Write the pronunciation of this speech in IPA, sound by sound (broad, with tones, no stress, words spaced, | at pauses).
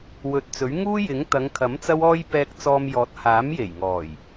wɵ˨t̚ t͡sɵ˨˥ɥ ŋuː˥jɪ˨˥ŋ t̪ɐ˨˧ŋkʰɐ˨˥m t͡sɐ˥wɔː˥j pɛː˧k̚t͡sɔː˧mjɔː˨˥t̚ haː˨˥mje˨˩jŋɔː˨˩j